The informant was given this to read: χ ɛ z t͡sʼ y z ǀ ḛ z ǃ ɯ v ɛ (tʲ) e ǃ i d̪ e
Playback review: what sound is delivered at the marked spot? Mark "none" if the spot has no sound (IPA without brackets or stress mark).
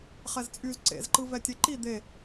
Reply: tʲ